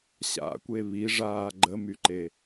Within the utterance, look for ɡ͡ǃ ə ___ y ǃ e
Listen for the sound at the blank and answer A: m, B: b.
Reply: A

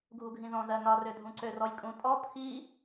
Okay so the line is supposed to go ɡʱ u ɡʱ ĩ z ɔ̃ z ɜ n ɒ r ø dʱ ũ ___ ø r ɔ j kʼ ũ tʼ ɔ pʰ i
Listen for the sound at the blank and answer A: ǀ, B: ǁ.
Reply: A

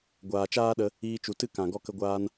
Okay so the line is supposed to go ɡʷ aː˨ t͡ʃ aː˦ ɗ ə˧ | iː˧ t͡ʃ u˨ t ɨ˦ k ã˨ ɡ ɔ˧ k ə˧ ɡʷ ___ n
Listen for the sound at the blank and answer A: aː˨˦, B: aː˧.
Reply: B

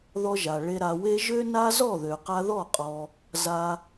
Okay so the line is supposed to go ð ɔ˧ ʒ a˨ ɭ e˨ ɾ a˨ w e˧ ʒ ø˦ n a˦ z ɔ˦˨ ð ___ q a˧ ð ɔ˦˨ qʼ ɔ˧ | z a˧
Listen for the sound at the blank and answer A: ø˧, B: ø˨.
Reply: B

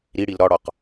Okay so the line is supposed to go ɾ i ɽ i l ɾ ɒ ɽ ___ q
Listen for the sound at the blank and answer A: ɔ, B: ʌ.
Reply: A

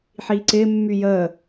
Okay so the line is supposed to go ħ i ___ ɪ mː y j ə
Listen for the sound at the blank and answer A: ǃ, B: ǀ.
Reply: B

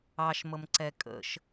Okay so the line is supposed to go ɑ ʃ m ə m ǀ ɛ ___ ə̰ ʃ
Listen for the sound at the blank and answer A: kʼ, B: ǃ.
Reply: A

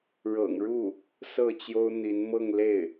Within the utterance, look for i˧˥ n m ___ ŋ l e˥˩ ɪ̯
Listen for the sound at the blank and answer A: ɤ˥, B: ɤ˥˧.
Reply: B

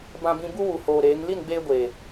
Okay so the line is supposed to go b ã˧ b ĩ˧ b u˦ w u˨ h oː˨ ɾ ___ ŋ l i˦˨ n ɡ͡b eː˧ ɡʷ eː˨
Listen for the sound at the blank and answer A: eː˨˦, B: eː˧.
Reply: A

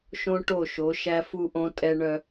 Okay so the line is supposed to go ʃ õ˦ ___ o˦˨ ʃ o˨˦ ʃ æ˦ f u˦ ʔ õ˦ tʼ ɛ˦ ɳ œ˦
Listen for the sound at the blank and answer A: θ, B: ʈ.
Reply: B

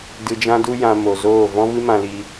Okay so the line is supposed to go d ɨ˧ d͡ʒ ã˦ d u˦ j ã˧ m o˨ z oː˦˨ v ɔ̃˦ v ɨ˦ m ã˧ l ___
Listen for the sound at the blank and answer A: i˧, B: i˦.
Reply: A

